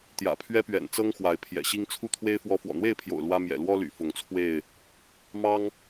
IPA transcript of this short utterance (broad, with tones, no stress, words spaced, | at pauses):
t̪jä̰˨˩pʰɥɛ˦pɥɛ̰˨˩nt͡sɤ˦ŋ xwa˨˦ɪ̯pʰjɛ̰˨˩ɕi˦ŋ t͡sʰu˥˨t̪ʰwe˦ɪ̯ fwɔ˦ fwɔ̰˨˩n̪we˥˨ɪ̯pʰjo̰˨˩ʊ̯ lwä˦ mjɛ̰˨˩lwɔ˦ly̰˨˩ fʊ˨˦ŋt͡sʰwe˥˨ɪ̯ | mɑ˦ŋ